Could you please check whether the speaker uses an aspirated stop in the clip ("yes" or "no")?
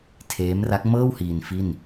yes